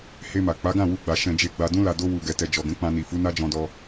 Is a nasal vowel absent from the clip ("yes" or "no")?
no